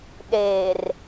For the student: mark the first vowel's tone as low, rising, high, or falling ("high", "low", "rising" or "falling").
low